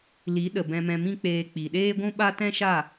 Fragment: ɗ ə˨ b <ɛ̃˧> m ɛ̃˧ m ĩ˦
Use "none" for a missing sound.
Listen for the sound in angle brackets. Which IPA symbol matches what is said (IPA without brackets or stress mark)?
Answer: ɛ̃˧